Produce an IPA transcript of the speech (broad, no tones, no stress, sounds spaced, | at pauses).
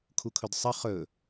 kʰ u kʰ ɵ d sˤ ə χ ɵ